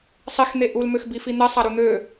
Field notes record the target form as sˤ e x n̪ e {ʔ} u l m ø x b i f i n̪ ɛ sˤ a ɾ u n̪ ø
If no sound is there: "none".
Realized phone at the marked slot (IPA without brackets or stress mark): ʔ